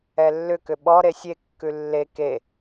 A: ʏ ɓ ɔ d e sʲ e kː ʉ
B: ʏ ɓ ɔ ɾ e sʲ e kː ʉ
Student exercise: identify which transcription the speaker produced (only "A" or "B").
B